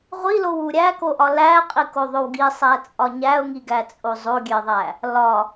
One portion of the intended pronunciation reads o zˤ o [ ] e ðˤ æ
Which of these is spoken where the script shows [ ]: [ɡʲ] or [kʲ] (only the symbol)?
ɡʲ